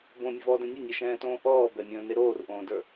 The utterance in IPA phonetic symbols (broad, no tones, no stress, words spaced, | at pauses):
bõmʲəvɔːdɛ̃ nʲɘnʲɛʃɛ̃ːtõː ʔɔː bɛmʲə̃ːne ɾoːrʔõːdə˞